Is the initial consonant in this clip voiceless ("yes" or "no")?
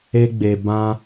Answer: no